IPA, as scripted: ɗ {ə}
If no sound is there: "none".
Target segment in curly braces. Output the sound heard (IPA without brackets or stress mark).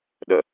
ə